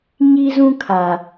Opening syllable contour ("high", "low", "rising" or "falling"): high